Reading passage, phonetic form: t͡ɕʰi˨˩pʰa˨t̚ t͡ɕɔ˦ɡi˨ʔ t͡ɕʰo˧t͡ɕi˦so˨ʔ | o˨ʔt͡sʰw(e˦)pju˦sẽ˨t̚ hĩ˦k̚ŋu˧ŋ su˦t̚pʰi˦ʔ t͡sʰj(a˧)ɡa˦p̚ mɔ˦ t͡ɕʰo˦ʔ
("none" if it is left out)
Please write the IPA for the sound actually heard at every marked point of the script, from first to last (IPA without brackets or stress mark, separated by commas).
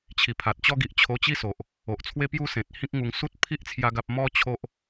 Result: e˦, a˦